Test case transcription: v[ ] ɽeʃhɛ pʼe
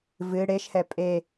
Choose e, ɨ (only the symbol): ɨ